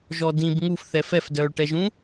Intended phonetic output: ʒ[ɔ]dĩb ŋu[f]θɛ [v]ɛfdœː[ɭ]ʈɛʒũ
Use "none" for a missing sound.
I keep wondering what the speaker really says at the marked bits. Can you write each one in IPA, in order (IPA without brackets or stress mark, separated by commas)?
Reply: ɔ, f, f, ɭ